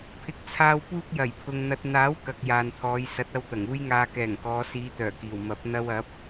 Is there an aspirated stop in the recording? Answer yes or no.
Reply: yes